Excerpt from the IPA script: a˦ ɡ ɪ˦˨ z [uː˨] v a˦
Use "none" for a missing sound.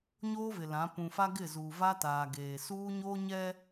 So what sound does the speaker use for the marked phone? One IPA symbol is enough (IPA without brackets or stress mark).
uː˨